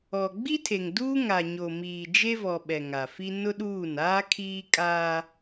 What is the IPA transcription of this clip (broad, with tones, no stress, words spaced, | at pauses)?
ɔ˨ ɡ͡bi˦tʰe˨ŋduː˦ ŋa˨ɲo˨miː˨ d͡ʒe˦vɔ˨ ɓɛ˨ŋa˨fi˦ nʊ˦ɗuː˦˨n aː˦kʰiː˦kʼaː˦